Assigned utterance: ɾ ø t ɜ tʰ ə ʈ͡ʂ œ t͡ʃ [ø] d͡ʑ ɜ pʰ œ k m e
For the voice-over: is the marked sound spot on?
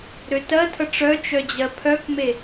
no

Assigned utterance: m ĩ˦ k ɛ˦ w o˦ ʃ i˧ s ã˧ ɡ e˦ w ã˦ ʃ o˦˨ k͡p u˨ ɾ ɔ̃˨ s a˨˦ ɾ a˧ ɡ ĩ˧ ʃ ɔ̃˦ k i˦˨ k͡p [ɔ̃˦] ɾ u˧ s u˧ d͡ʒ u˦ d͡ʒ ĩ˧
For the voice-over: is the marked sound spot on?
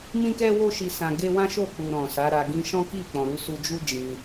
no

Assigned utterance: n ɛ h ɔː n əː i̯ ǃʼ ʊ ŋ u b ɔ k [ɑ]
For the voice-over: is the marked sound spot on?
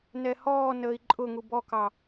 yes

